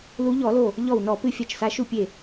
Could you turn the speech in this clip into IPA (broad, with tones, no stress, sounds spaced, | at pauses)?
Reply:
l u˨˦ ʎ ɔ˧˩˧ l o˧˩ | ʎ ɔ˧˩ w n ɔ˧˩˧ p ɨ˧˩ fʲ a˧˩ t͡ʃ s a˨˦ ʃ u˧˩ pʲ e˧˩